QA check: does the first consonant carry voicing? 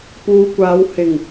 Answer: no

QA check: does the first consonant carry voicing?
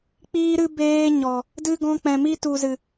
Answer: no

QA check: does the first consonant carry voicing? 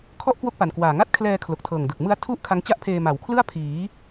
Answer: no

